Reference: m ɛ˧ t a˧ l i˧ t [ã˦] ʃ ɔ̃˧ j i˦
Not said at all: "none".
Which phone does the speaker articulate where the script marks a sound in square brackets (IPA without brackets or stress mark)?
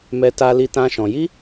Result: ã˦